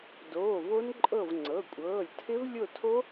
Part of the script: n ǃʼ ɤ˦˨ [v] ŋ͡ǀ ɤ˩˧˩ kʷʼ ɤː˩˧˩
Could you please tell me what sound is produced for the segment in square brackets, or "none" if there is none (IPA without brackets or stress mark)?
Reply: v